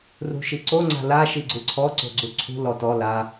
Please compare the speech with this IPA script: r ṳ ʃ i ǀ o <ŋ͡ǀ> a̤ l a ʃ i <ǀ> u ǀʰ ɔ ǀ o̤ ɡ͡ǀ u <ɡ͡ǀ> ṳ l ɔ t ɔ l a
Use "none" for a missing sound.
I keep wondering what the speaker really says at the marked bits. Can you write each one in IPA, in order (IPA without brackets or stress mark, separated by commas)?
ŋ͡ǀ, ɡ͡ǀ, ǀʰ